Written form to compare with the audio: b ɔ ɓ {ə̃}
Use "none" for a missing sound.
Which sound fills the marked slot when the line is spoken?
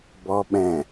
ɛ̃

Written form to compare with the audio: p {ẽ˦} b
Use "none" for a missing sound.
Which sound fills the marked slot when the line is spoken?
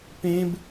ẽ˦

